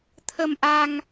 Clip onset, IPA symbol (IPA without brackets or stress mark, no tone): t̪ʰ